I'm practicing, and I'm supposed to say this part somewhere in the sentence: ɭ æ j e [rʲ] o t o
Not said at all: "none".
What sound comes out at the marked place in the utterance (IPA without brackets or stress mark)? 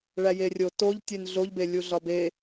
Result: rʲ